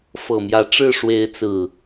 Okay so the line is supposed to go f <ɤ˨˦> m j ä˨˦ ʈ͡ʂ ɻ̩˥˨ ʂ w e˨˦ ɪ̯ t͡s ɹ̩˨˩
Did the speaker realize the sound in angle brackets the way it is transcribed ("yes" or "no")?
no